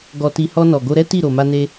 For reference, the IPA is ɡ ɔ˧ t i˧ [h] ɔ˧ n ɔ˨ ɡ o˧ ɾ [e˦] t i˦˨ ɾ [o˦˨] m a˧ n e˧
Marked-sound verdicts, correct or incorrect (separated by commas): correct, incorrect, incorrect